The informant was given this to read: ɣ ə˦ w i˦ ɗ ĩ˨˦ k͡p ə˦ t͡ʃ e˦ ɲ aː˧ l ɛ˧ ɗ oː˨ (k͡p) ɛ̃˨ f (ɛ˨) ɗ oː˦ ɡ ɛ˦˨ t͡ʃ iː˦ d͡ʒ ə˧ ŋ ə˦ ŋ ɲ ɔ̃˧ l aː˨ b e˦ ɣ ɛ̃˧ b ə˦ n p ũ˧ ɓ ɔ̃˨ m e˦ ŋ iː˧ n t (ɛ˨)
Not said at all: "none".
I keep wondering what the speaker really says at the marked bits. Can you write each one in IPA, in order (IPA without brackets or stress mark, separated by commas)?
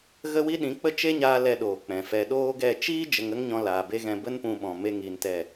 k͡p, ɛ˧, ɛ˦˨